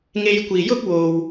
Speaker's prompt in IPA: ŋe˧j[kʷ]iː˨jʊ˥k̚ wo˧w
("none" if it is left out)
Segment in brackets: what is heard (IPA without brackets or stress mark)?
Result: kʷ